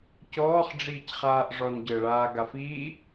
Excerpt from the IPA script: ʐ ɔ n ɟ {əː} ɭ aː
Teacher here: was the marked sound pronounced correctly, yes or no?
yes